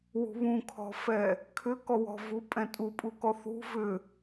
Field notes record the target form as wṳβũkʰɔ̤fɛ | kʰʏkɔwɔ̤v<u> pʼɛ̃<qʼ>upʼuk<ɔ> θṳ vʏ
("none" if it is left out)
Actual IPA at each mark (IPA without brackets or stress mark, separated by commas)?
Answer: u, tʼ, ɔ